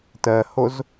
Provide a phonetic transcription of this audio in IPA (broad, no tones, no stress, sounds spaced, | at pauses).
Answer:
t ɜ h o z